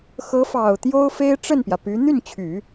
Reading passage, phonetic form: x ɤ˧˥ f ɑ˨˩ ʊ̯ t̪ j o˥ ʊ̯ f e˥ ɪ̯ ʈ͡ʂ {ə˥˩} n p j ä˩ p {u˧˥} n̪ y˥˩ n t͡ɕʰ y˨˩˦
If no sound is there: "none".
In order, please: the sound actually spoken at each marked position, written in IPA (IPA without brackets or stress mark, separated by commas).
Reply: ə˥˩, y˧˥